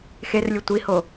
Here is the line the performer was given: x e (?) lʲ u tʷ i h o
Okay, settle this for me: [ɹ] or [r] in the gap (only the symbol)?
r